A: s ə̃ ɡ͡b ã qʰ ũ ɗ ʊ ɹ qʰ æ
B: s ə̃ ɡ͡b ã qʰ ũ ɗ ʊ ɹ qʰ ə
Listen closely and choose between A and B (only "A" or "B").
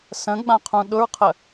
B